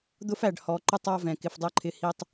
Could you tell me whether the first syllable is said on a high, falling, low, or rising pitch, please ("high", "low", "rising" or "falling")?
high